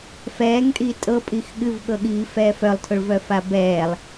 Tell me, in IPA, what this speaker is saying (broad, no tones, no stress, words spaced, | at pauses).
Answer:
fɛːŋtʼiː tʼɤpʼix ɠɨvɠɤɠiːfɛː fœlˠtʰʊɭvœfa bɛːlˠ